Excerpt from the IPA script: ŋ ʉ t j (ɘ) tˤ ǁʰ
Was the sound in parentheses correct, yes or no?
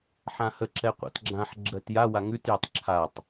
no